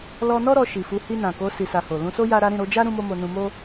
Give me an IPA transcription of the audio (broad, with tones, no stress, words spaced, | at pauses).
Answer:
lɔ˧nɔ˦ ɾɔ˧ʃi˨fu˨˦ hi˧nã˨ko˨˦ si˧sa˧ho˨ lũ˧so˦ ja˦ɾa˦ ɾĩ˦˨ɾo˧d͡ʒa˦ ɾũ˦mo˦ mo˧nũ˧mo˦